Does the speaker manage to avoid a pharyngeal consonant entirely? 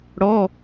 yes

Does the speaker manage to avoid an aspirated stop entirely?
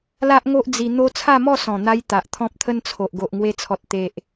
no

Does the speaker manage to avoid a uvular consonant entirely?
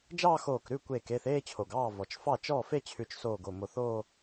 yes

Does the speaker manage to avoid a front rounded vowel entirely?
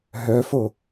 no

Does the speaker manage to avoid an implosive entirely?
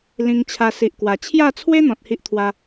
yes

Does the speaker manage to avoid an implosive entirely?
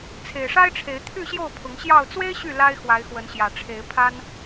yes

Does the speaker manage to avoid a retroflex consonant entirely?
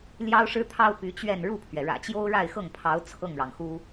no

